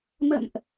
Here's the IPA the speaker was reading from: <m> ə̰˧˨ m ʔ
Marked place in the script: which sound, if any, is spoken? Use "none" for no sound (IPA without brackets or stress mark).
m